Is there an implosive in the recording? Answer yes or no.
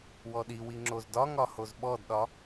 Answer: yes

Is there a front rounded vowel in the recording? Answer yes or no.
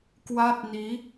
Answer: no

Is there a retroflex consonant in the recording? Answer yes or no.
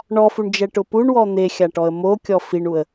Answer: yes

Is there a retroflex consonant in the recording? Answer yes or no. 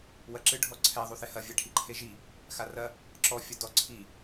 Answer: yes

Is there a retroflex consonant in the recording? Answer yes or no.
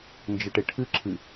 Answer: yes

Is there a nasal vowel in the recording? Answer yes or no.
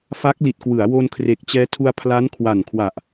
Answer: no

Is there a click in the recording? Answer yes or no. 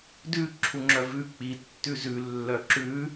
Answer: yes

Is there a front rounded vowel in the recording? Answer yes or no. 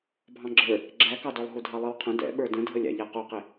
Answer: no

